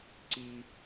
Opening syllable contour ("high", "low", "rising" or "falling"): low